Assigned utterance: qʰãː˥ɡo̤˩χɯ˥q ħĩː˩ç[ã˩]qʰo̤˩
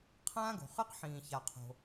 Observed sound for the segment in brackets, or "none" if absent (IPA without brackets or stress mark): a˩